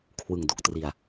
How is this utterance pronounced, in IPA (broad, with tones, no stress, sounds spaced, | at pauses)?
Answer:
kʰ w ɯ˨˩ ŋ d o˨˩ k̚ t r i˨˩ a̯